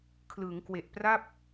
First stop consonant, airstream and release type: aspirated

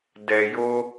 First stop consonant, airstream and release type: plain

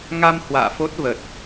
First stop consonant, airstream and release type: plain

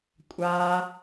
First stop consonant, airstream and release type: ejective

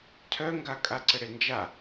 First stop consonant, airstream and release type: aspirated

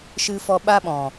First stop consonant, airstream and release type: implosive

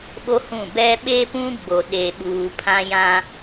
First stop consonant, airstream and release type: implosive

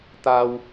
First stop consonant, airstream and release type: plain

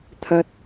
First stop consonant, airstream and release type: aspirated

